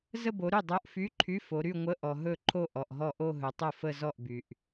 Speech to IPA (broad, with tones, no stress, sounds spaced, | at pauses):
z ə˥˧ b o˨˦ ɾ y˥˩ dˤ o˧˥˧ ʔ f y˧˥˧ ǃʰ y˧˥˧ f o˨˦ ɾ y˥˧ ŋʷ ə˧˥˧ ʔ ɔ˨ ɦ ɵ˥˩ ǃʰ o˥˧ ʔ ɔ˨ ʔ ɦ ɔ˥˩ ʔ o˥˧ ɦ ɵ˨˦ tˤ o˥˩ f ə˥˧ z ɔ˥˩ ʔ b y˨ ʔ